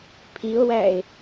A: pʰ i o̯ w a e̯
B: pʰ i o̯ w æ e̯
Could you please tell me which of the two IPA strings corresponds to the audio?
B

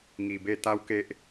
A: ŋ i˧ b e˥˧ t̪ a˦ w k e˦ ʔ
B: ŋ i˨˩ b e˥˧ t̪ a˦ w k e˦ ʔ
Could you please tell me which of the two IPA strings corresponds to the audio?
B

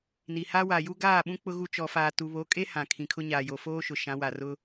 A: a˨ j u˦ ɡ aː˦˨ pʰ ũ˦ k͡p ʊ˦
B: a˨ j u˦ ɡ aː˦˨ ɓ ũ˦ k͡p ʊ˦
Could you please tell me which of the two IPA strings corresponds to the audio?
B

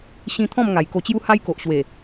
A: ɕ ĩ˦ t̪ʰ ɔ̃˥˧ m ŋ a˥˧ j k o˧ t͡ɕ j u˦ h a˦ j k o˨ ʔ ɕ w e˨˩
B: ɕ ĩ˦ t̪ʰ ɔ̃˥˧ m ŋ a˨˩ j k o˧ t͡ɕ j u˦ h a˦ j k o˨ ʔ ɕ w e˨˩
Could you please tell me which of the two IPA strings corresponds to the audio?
B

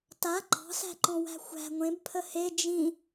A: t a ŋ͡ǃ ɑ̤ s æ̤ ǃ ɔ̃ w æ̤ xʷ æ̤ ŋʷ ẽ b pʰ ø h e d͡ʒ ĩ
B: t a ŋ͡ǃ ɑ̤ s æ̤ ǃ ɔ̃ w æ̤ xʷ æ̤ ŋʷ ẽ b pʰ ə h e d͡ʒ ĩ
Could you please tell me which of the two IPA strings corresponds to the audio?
B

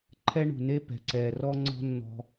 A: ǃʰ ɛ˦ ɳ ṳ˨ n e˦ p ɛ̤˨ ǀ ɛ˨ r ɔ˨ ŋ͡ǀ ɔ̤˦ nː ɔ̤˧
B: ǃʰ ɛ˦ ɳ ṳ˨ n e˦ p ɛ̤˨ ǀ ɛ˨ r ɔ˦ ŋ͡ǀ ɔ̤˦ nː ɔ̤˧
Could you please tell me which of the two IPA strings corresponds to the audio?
B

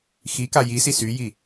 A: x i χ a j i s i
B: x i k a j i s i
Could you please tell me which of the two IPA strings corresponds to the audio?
B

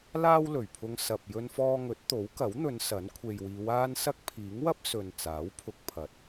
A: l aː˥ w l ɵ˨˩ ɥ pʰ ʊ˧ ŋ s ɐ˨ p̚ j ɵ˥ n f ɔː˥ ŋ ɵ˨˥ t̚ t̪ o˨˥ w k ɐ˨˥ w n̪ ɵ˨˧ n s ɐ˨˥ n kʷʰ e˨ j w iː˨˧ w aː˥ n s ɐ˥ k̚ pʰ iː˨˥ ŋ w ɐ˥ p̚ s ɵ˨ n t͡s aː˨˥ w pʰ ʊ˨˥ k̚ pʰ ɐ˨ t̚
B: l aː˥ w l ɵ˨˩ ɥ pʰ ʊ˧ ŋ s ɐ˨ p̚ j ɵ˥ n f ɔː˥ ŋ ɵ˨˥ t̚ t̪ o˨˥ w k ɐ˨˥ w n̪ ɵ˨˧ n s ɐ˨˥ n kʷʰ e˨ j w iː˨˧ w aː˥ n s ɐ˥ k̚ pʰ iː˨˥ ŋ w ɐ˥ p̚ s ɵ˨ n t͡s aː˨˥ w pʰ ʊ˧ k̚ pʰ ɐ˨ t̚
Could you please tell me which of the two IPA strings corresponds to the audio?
B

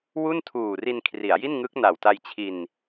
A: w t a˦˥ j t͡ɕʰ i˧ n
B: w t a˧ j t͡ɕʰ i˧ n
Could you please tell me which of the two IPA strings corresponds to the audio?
B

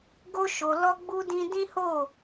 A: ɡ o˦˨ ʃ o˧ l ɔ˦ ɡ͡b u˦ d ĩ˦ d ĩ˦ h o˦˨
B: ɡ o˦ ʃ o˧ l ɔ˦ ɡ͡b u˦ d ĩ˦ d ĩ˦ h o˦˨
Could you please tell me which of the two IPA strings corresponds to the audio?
B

